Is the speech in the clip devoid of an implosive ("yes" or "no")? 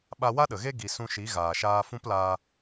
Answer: no